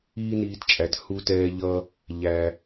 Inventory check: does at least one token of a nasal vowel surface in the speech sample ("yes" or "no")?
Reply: no